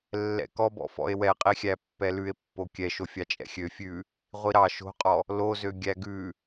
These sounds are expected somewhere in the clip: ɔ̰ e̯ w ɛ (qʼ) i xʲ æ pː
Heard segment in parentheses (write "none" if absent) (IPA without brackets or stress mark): qʼ